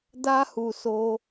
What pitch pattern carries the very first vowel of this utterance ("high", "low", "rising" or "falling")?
high